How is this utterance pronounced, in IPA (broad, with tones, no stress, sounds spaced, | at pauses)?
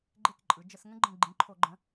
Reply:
ɡ͡ǃ e˦˨ k ǃʼ ɯ˩˧ d͡ʒ ə˧˩˧ s ŋ ə̃˥ ɡ͡ǃ ə̃˦˨ ɡ͡ǃ ĩ˩˧˩ ǃʰ o˧˩˧ ɡ͡ǃ ə̃˩˥